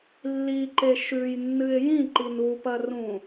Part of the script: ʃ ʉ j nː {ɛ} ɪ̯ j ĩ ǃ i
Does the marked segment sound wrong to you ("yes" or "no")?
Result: yes